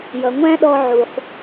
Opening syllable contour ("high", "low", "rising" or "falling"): low